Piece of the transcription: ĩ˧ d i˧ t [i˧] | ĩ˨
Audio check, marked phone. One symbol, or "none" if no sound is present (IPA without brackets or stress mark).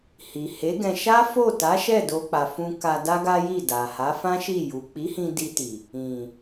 i˨